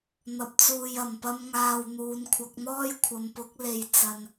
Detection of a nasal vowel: absent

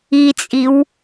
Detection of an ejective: present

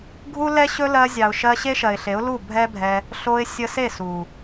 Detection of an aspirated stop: absent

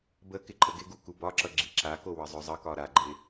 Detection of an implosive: absent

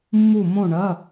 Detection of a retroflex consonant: present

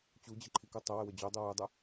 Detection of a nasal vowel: absent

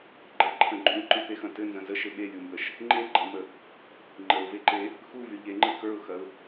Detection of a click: present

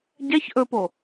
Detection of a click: absent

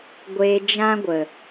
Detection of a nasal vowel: present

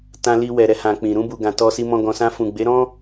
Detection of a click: absent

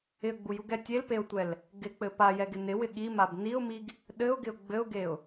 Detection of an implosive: present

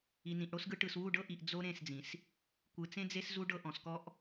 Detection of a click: absent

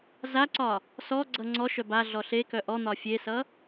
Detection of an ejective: absent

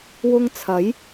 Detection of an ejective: absent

